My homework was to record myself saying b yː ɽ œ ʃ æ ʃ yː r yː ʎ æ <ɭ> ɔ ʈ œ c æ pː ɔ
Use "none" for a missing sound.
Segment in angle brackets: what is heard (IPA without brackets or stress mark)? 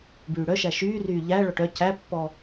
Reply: ɭ